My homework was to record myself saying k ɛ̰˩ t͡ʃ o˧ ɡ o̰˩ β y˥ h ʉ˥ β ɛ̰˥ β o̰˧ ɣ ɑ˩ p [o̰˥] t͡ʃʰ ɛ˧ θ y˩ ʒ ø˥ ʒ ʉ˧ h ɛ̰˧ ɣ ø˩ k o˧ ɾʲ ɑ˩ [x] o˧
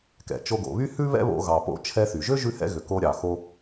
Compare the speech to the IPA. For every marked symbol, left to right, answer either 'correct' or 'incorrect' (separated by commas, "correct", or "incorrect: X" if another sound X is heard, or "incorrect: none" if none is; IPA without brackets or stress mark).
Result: incorrect: o̰˧, correct